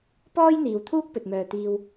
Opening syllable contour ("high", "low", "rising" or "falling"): high